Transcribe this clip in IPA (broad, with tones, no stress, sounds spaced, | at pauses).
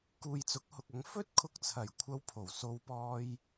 k uː˨ j t͡s ʊ˨˥ k̚ h ʊ˨ k̚ ɐ˨˧ ŋ f ɵ˥ t̚ kʰ ʊ˧ k̚ t͡sʰ ɐ˨˩ j kʷʰ ɐ˧ w pʰ o˨˩ w s o˧ w p ɔː˧ j